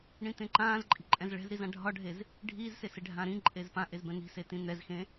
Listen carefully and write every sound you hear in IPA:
ɳ ĩ t̪ ẽ ǃ ãː z ǃʼ i̤ ǃʼ ɛ̃ z ɭ ɛ̤ z ɾ i z ã ɖʱ ɒ ɖʱ e z | ɖʱ iː z s e s e ɖʱ ã ɾ ĩ ǃʼ e z p ã ʔ e z b ɛ̃ n̪ i̤ s e t ĩ n̪ ɛ z x ẽ

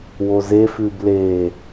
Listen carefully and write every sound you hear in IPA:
w o z e f ʉ b l e

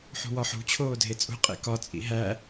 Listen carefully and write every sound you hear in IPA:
ħ ṳ w ɒ ħ ṳ t͡ɕʰ oː dʱ e t͡sʼ ṳ qʼ ḛ k ɒ t͡sʼ ḭ ɦ æ

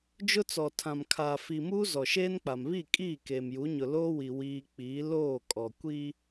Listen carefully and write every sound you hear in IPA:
d͡ʒ ʊ˦ t͡s ɔ˨ tʰ ã˨ m kʰ aː˨ f i˨ m uː˦ z ɔ˨ ʃ eː˦ n k͡p a˨ m β i˦˨ kʼ iː˦˨ k eː˨ m j u˨˦ ɲ ʊ˨ l oː˦ w i˨ w iː˦ k͡p iː˨˦ l oː˦˨ kʼ ɔ˨ kʷ i˦

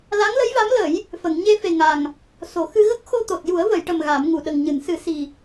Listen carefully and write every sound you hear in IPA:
l a˧˥ ŋ l ə˧˥ j v a˧˥ m l ə˨˩˦ j | f ə˨˩˨ ŋ ɲ e˧ f e˨˩ ŋ a˨˩ ŋ | s o˨˩˦ x ɨ˧ ɣ ə˦˥ k̚ x o˧ t̪ o˨˩ t̚ j u˨˩˦ ə̯ v ə˨˩˨ j ʈ ə˨˩ m ɣ a˨˩˦ m ŋ u˨˩ ɗ ə˨˩ ŋ ɲ ɨ˨˩˨ n s ɨ˨˩˦ s i˨˩

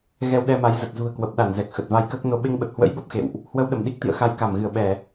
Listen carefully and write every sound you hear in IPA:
ɣ ɛ˧ w ɗ ɛ˧ m a˨˦ j z ə˨˩ t̚ z ṳ˨˩ ə̯ k w ə˨˩ p̚ ɗ a˧˩ n z ɛ˨˩ k̚ x ə˨˩ t̚ v a˧ j k əː˦˥ k̚ n o˧ ɓ e˧ ŋ ɓ ə˨˩ t̚ h w ə̰˧˥ j ɓ ə˦˥ p̚ x ḛ˧˨ w ʔ | h w ə˧ w ɗ ə˧˩ m ɗ i˦˥ k̚ t̪ ḭ˧˨ ə̯ x a˧ j k a˧˩ m ɣ ɨ˧˩ ə̯ ɓ ɛ˧˩˨

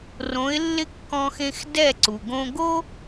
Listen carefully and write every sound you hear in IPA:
r õ˩˥ ɪ̯ lː ɪ˥˩ kː ɔ̃˧ x ẽ˧ x d ɛ˥˩ ǀ u˩ ɡ õ˧ ɡ o˥

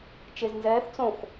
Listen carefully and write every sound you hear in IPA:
t͡ʃ e z n z ɛː θ t͡s õ x

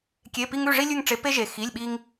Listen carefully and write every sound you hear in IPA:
kʲ e˧˥˧ p i˥ ŋ ʉ˧˥˧ ʐ i˥ lʲ ʉ˥˧ ŋ ʈ͡ʂ e˧˥ p e˥ ʒ e˧˩ x i˧˥˧ lʲ ɓ i˥ ŋ

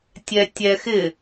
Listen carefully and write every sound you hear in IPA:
tʲ ɛ tʲ ɛ x ɪ

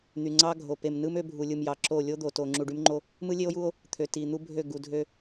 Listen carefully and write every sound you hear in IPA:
n̪ y˨ ŋ͡ǀ ɑ˦ ɡʱ o˨ p e˨ m n ɯ˦ m ø˦ bʱ u˨ lʲ ɯ˨ m j ɑ˨ ǁ o˦˨ lʲ o˦ d̪ o˨ t o˨ ŋ͡ǁ u˨ ɖ y˦ m ŋ͡ǃ o˦ | m ɯ˦ lʲ e˦ o̯ j u˦ o̯ | t̪ʰ ø˨ t i˨ n̪ u˦ bʱ ø˦˨ ɡ u˨ dʱ ø˦

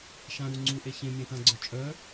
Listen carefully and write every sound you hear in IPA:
ʃ ã ɾ u ŋ͡ǀ u ʔ e ç ẽ mʲ ẽ t ã ɡ͡ǀ œ t͡ʃʼ œ

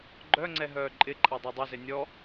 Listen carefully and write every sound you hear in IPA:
ɡ͡ǃ œ ŋ͡ǀ ɛ ɦ œː ǃʼ ɪ ǃʼ a dˤ ɛ dˤ ə z ɪ nʲ ɔ

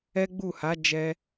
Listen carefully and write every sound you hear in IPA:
ɛ˦ ɡ͡b u˦˨ h a˨˦ d͡ʒ ɛ˧

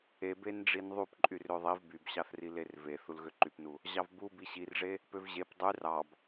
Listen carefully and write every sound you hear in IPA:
e b e n ɖ͡ʐ i n ðˤ u p ǃʼ y r ø ðˤ i v b y b ɕ ɑ θ r i l e r v e θ u l ɣ ø ǃ y p n u | ʑ ɑ v b u b i ɕ i r ʐ e | p ø v ʑ e p dˤ y r ɑ b

